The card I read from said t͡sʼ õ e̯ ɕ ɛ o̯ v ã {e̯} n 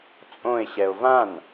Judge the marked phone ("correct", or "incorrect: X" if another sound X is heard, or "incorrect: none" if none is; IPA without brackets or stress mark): incorrect: none